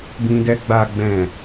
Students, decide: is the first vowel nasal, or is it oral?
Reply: nasal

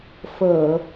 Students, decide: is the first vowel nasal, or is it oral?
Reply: oral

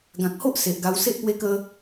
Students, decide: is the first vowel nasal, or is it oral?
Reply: nasal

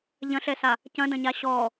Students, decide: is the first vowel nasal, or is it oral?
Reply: nasal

